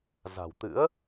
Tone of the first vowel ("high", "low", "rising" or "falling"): low